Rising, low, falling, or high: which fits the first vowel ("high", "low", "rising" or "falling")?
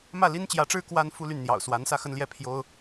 falling